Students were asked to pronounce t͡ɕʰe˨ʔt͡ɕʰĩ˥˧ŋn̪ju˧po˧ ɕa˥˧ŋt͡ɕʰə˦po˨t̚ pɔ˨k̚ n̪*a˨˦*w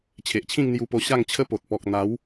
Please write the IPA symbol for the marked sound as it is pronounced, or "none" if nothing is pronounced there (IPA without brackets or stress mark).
a˨˦